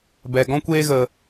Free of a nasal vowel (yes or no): no